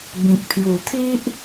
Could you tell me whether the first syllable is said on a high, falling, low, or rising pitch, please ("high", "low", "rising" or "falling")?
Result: low